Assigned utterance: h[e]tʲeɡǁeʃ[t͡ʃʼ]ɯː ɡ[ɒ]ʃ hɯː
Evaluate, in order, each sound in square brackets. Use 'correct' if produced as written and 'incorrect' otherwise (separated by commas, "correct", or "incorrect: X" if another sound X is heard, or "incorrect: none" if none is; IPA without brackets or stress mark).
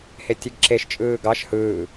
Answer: correct, correct, incorrect: ɑ